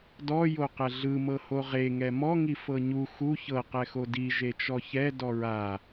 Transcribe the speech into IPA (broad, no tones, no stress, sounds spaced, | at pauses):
d ɔ j o q ɛ ɮ ɯ m ɤ h o ʁ e ŋ ɛ m ɔ ŋ i f ɤ ɲ u x u ç ɤ q ɛ x o d i ʒ e t͡ʃ ɔ ç ɛ d ɔ ɹ a